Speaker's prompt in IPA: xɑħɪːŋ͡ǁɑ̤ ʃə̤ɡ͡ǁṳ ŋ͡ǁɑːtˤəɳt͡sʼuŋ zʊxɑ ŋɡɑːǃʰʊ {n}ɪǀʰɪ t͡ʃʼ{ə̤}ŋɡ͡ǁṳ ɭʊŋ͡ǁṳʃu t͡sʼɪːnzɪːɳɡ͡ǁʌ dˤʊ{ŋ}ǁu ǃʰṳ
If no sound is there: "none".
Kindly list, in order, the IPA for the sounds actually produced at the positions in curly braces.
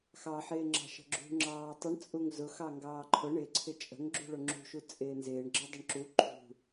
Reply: ɳ, ə̤, ɳ

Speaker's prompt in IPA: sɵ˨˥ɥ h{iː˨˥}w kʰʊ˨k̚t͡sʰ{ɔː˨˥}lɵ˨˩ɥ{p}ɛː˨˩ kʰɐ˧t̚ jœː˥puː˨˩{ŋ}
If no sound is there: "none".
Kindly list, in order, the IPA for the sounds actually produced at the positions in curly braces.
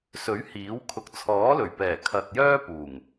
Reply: iː˨˥, ɔː˨˥, p, ŋ

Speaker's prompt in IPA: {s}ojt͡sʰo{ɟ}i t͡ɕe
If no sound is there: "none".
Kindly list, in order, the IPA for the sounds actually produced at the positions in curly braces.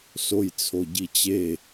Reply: s, ɟ

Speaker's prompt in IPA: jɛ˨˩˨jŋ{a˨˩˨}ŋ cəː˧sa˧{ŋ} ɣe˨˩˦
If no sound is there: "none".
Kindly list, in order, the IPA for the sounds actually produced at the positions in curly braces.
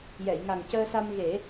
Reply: a˨˩, m

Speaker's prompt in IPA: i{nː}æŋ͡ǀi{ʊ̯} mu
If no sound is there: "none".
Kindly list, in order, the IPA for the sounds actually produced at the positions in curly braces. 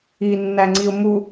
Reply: nː, ʊ̯

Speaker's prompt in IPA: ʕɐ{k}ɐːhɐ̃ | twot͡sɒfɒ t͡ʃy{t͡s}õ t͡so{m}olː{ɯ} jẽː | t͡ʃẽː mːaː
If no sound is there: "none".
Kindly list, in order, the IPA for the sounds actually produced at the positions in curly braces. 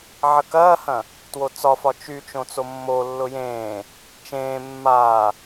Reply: k, t͡ʃ, mː, ʊ

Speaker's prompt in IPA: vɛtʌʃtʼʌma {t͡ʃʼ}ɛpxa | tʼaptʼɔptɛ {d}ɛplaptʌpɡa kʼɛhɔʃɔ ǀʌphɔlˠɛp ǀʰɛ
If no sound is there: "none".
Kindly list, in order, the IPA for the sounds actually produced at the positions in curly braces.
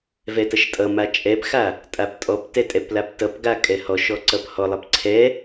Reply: t͡ʃʼ, tʼ

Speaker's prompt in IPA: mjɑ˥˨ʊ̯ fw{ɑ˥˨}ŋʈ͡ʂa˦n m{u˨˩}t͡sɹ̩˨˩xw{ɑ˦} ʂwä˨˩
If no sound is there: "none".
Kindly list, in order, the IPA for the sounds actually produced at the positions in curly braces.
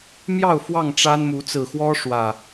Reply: ɑ˥˨, u˨˦, ɔ˦

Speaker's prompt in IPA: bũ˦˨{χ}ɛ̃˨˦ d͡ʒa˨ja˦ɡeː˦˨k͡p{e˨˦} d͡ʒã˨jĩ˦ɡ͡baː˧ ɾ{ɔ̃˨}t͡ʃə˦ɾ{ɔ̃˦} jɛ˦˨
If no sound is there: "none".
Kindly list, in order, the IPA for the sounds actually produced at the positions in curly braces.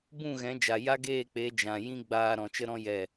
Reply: ɣ, e˨˦, ɔ̃˨, ɔ̃˦

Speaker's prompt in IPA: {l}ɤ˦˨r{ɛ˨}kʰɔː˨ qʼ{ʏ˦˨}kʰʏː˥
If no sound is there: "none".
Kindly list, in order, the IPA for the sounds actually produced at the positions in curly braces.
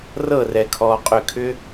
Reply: r, ɛ˨, ʏ˦˨

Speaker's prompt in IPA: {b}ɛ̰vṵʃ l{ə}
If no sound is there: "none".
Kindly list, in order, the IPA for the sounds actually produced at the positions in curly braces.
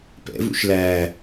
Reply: p, æ

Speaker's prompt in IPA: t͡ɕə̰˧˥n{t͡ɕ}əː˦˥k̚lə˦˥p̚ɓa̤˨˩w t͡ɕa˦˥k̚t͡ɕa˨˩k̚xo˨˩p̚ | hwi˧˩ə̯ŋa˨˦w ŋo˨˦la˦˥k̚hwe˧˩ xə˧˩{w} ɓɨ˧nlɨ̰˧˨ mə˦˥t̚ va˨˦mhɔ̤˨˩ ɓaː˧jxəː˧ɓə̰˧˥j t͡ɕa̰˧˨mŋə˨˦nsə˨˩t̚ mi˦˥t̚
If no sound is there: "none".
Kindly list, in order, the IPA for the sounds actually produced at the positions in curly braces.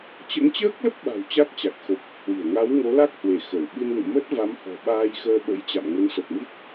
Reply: t͡ɕ, w

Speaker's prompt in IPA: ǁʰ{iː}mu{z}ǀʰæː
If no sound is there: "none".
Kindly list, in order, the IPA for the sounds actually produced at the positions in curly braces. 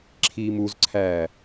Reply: iː, z

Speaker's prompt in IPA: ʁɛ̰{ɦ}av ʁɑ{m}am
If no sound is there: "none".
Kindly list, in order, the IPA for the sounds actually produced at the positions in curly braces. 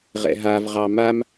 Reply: ɦ, m

